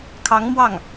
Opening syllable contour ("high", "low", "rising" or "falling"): rising